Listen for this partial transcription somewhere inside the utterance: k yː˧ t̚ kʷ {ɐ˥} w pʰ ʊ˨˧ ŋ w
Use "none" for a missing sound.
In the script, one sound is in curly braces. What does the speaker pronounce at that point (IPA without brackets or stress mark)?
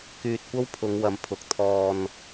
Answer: ɐ˥